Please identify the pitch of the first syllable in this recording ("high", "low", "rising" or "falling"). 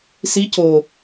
rising